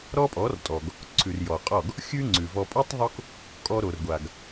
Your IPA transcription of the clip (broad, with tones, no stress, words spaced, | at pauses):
ɾɔ˦pʼɔ˨˦rtʼɔ˨ɡ | ǀʰʉ˨rjɔ˨qʼɔ˦˨ɡ | xʲʉ˦ ŋ͡ǀʉ˨vɔ˧ pʼo˦tˤ ðˤo˦k | kʼɔ˧ɾo˨rɡʷa˨ɡ